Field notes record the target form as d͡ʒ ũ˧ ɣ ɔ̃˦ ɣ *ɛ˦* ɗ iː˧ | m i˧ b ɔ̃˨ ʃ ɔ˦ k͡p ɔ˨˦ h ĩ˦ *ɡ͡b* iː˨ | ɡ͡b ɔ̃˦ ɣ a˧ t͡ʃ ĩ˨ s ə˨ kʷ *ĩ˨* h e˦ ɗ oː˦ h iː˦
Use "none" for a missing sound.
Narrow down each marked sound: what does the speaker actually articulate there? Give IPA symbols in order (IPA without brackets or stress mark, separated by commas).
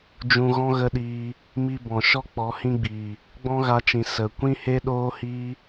ə˦, ɡ͡b, ĩ˦